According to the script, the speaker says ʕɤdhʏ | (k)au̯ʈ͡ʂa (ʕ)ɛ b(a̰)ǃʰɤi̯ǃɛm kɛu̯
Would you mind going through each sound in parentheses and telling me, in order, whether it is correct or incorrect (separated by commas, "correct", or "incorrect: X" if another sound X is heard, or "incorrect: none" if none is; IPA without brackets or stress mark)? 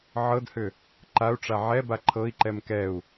incorrect: ǃ, correct, incorrect: a